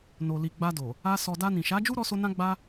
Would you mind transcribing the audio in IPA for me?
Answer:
n o˨ l i˨ ɡ͡b a˧ d o˨ | a˧ s ɔ˨ d a˧ n ĩ˨ ʃ a˨˦ d͡ʒ u˦ ɾ ɔ˧ s o˧ n ã˦ ɡ͡b a˦

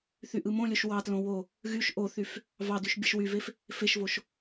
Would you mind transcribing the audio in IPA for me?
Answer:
θ y ʔ ɯ m õ lʲ o ʃ w ɑ t l õ w o | ɣ y ʃ ʔ o θ y f | v ɑ d y ʃ bʲ ɯ ʃ w y v e f | f e ʃ v o ʃ

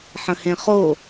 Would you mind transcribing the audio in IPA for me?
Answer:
ħ ə̃ h ẽ χ o

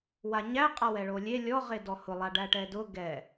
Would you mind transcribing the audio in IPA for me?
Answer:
w a ɲ æ qʼ a w ɛ ɭ o lʲ e lʲ ɔ ʁ e d ɔ h ʊ lˠ a ɖ æ ʈ ɛ d ʊ ɡ ɛ

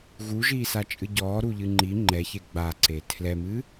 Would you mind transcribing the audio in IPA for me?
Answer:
ɣ u ʒ iː s a t͡ʃʼ ɨ ɟ ɔː ɾ u ʎ ɨ ŋ͡ǃ i ŋ͡ǃ ɛ ç e ɡ͡b a ǀ e tʰ l ɛ m ɨ

